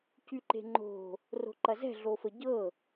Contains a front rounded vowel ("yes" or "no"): yes